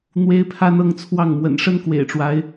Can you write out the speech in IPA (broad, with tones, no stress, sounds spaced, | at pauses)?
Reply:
n̪ w e˦ ɪ̯ pʰ a˦ n ɤ˦ ŋ t͡sʰ w ɑ˥˨ ŋ m w ə̰˨˩ n ʂ ə˦ n k w ḛ˨˩ ɪ̯ ʈ͡ʂ w a˦ ɪ̯